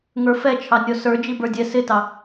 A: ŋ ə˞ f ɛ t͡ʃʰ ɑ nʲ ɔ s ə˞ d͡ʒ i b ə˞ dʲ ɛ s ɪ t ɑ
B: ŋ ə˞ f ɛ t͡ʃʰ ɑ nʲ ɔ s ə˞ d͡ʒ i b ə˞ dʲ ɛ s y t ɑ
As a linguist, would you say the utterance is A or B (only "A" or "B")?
A